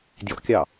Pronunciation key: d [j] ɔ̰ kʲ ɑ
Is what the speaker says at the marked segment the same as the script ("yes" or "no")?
yes